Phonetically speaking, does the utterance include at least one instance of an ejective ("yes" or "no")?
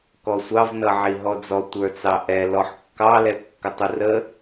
no